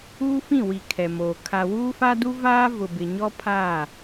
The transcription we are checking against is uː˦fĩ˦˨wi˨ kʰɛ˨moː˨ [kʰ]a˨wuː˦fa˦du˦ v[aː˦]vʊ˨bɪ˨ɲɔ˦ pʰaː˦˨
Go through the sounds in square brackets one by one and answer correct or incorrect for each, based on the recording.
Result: correct, correct

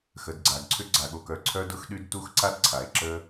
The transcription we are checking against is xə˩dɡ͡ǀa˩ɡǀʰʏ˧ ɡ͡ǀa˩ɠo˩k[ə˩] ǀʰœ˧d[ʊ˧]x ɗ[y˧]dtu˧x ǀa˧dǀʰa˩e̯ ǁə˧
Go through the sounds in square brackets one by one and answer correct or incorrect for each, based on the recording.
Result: incorrect: œ˩, correct, correct

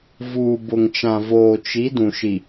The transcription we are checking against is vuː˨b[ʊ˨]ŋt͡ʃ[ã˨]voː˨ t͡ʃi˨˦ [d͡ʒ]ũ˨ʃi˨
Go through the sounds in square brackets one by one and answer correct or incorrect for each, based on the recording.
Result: correct, correct, incorrect: d

